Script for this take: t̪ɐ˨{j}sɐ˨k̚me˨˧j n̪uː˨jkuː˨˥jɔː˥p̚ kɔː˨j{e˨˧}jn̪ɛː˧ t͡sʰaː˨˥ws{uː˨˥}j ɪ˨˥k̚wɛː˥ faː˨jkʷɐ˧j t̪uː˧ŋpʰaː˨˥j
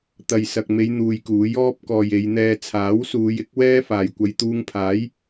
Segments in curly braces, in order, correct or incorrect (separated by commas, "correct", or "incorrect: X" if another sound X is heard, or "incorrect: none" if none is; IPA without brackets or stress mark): correct, correct, incorrect: uː˨˧